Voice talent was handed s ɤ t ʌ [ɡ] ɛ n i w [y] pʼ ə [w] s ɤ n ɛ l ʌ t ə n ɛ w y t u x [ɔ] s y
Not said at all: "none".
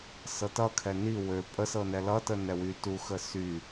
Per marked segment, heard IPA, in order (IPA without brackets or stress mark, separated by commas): kʰ, ø, none, ə